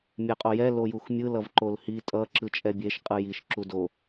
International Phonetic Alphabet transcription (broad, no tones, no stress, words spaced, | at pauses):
mʲɛqʼojɛ lojuxmʲɯ lʌvǃolhi tʼʌ ǁɯt͡ʃʼɛbʲeʃ qʼɯjiʃ ǁudo